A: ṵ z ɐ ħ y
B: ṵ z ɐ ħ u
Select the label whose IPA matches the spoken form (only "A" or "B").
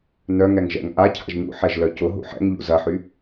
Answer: A